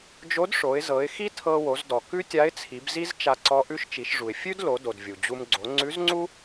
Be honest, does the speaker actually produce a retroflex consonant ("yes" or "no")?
yes